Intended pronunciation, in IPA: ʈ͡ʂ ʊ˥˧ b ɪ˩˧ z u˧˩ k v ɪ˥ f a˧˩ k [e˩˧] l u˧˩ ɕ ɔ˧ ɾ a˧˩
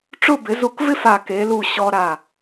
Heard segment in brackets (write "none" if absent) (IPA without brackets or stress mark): e˩˧